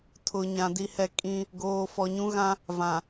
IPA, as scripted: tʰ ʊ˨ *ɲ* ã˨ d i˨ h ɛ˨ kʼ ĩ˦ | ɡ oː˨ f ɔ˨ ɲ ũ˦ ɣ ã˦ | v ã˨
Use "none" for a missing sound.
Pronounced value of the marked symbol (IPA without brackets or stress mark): ɲ